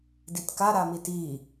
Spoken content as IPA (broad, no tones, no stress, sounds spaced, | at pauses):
d i t k a ɾ a m i t i